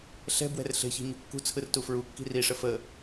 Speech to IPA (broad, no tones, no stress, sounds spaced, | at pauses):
ɬ ɛ̤ b w ɛ̤ r ɬ e̤ ç i̤ ɲ ṳ kː ṳ t͡sʰ ɯ r t u f ɹ u kː i̤ r i ʂ ə f ə